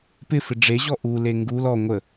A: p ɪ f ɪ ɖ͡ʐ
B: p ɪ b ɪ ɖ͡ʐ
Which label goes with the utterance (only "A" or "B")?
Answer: A